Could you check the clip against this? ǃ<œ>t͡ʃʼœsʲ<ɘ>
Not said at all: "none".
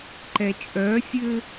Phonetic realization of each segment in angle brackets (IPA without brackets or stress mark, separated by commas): ɛ, ɘ